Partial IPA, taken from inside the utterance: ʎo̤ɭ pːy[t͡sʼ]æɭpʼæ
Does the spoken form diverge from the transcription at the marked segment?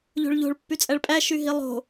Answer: no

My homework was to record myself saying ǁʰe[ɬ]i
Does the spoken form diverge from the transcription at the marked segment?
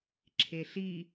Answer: no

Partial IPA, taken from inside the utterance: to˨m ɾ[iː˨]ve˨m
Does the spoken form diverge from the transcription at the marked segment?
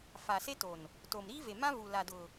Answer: yes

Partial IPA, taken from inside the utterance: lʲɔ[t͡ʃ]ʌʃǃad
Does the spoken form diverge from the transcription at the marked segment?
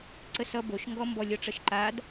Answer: yes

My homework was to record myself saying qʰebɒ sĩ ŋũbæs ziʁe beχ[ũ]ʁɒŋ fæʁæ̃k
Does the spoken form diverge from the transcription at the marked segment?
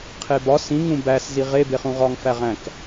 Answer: no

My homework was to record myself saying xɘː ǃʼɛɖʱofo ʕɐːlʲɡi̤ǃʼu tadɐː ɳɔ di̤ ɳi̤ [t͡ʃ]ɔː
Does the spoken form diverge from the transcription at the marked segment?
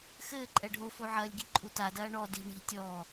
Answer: yes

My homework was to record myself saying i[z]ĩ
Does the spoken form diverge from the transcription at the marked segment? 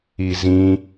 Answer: no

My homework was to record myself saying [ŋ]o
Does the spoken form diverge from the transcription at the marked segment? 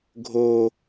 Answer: yes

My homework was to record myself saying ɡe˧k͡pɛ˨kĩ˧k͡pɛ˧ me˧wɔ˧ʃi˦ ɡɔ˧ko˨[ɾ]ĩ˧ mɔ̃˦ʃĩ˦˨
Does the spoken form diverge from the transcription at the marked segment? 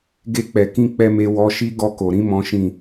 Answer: no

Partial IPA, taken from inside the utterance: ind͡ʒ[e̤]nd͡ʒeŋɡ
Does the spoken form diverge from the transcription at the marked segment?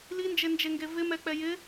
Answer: yes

